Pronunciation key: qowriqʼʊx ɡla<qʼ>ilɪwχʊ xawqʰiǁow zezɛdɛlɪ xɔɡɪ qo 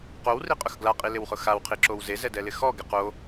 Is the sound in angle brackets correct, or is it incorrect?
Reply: correct